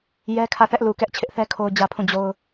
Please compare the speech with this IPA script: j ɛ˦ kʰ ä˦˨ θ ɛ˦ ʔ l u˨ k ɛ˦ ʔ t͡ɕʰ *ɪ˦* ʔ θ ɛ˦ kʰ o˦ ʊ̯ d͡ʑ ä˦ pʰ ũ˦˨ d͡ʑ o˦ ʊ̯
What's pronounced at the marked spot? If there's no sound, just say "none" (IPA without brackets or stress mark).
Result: ɪ˦